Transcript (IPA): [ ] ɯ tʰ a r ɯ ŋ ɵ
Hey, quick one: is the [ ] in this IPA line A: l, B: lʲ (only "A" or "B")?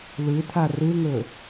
A